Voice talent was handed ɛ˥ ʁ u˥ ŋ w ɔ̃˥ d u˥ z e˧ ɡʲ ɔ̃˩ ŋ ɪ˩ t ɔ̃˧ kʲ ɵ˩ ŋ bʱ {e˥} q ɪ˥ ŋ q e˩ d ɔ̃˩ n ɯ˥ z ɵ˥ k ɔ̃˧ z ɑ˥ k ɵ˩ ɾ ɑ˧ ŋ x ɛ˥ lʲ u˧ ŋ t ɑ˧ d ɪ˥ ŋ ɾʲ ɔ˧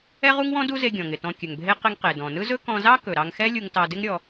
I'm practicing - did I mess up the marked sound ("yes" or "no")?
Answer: no